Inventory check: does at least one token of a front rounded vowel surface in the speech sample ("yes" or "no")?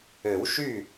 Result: yes